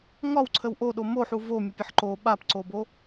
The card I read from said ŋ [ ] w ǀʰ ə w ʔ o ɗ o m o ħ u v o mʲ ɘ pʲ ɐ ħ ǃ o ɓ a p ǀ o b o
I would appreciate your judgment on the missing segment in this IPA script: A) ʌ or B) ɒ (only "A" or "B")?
B